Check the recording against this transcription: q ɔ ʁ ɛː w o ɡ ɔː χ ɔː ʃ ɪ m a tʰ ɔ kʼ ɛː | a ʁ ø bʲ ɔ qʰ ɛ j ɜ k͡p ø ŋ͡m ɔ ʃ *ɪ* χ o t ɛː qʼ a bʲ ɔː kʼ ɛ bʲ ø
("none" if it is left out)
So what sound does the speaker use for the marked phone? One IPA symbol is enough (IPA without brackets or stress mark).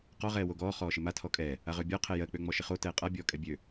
ɪ